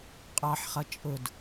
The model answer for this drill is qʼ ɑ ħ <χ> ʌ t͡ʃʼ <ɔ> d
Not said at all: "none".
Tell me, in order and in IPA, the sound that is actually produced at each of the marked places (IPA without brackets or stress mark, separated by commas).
χ, ʊ